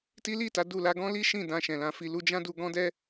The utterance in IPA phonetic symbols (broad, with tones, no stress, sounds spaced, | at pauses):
t i˦ l i˦˨ t a˨˦ d u˦˨ l a˧ ɡ ɔ̃˦ l i˦ ʃ ĩ˦˨ d ã˧ ʃ ɛ̃˨ l ã˨˦ f i˧ l u˧ d͡ʒ ã˦ d u˧ ɡ ɔ̃˦ d ɛ˦